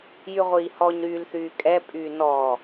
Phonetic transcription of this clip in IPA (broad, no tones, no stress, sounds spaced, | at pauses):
j y ʁʷ iː h ɔ ɲ ɾ yː l θ yː kʼ ɛ pʼ yː n ɔː